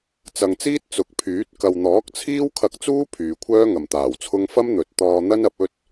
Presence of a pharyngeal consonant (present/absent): absent